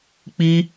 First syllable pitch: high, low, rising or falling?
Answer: high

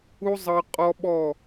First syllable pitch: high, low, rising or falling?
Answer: high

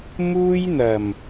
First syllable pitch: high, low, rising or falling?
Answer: high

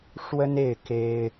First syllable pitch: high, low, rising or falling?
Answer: high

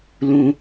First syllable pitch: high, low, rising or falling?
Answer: low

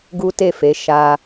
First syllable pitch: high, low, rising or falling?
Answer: high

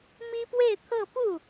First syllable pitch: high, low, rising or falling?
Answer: high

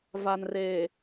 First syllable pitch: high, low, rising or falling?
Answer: low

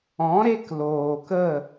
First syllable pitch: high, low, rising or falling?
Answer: rising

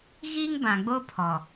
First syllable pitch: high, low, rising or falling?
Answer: high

